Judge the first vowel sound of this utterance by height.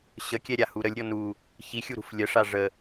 mid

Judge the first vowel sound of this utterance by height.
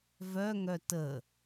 mid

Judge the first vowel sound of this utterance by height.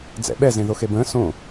mid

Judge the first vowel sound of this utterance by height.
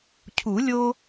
high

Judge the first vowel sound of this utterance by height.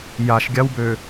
low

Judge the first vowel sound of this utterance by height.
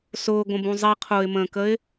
high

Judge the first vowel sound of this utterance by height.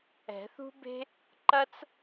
mid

